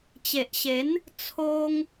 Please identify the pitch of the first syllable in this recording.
low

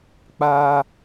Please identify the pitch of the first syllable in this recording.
high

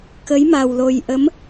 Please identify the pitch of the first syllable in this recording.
rising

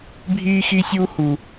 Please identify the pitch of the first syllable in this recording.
high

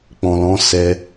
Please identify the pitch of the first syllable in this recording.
low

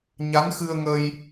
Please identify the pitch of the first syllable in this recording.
rising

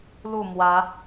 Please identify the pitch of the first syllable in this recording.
falling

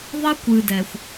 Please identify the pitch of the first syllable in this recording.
high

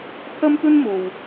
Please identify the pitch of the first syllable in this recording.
high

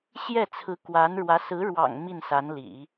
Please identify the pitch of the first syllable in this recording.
falling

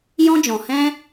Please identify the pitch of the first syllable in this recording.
high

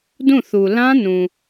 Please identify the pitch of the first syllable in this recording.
falling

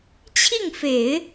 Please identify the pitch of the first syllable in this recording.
falling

